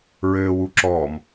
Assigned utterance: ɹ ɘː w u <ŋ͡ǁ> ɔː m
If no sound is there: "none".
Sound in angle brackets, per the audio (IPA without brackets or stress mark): ǁ